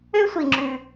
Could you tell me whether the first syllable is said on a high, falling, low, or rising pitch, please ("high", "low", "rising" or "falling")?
high